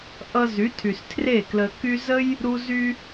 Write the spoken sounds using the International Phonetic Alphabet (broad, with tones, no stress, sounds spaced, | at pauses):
ʔ ʌ˧ z y˨˦ tʰ y˨ s tʰ r e˦˨ k l ə˧ k y˧ z ə˦ j | ɾ u˧ z y˧